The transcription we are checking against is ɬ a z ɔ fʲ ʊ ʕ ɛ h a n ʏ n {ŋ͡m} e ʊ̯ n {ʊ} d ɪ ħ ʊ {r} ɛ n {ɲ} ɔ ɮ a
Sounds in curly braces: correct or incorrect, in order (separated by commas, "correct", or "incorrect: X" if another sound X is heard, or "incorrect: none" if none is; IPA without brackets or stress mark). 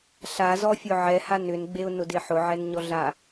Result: incorrect: ɡ͡b, correct, incorrect: ʕ, correct